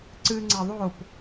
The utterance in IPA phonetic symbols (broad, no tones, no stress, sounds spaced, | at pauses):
ǀ ɨ ŋ͡ǀ a ðˤ o p